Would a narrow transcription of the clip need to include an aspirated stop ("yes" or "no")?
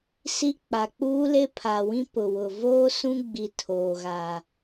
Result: yes